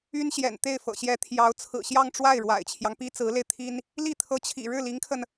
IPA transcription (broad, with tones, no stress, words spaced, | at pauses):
y˥nɕjɛ̰˨˩nt̪e˥˩ɪ̯fɤ̰˨˩ ɕjɛ˧˥t̪ʰjɑ˧˥ʊ̯ t͡sʰɹ̩˨˩ɕjɑ˥˧ŋʈ͡ʂwa˥˩ɪ̯ ɻwa̰˨˩ɪ̯t͡ɕʰjɑ˦ŋpi˥ t͡sɹ̩˧˥le˧ɪ̯t̪ʰi˥n | li˥˩t̪ʰɤ˧˥t͡ɕʰḭ˨˩ ɻɻ̩˥˩li˧˥ŋkʰə˧n